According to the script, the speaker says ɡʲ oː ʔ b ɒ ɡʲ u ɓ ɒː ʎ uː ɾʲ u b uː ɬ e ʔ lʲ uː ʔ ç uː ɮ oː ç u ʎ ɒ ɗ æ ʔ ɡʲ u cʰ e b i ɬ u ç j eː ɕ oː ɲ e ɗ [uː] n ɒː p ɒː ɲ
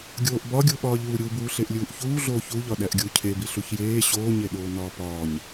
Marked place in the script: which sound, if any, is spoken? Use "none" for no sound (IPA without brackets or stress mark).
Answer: oː